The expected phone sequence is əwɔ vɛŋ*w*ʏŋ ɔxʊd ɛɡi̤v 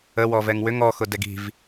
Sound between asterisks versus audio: correct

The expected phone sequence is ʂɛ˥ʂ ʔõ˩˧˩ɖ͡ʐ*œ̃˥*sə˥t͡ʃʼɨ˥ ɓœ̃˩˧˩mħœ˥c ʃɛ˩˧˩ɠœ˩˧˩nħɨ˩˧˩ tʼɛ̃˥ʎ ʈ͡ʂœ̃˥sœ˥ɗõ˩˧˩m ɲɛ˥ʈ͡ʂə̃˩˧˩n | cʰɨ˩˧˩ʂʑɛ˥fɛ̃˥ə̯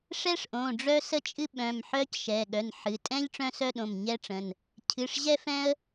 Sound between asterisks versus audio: incorrect: œ˥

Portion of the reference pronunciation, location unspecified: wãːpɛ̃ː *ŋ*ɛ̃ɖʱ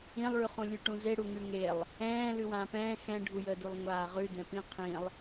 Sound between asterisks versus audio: incorrect: x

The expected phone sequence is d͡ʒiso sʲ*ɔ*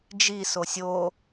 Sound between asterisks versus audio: incorrect: o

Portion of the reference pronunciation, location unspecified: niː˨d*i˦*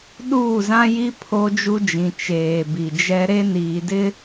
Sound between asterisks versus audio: incorrect: ɪ˦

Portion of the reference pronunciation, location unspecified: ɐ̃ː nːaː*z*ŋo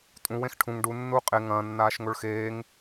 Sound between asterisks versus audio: incorrect: ʃ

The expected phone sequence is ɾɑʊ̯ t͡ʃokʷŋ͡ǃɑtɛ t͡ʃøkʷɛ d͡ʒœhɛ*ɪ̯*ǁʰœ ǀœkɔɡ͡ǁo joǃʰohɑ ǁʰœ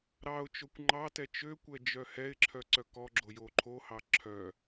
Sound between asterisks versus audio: correct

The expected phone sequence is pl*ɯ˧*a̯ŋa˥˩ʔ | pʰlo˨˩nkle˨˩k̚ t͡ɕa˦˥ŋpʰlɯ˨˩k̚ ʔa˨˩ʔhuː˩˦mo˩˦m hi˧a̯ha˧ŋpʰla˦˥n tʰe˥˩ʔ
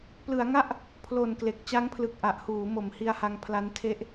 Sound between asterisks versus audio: incorrect: ɯ˩˦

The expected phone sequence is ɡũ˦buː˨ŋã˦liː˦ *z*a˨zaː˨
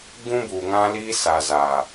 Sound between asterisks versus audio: incorrect: s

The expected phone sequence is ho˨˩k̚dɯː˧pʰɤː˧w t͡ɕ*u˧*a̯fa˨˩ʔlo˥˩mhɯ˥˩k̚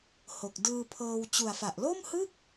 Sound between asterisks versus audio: incorrect: u˨˩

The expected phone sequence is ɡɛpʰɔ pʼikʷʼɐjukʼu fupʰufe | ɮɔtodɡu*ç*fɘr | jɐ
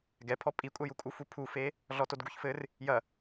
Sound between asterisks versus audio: correct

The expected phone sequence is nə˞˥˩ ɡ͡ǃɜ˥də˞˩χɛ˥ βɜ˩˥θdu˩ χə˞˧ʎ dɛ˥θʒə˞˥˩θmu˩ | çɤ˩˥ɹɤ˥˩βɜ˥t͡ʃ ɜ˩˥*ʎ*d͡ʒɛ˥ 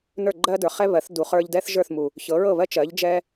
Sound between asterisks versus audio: correct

